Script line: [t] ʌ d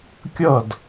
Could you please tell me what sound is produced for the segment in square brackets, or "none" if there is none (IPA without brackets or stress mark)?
kʲ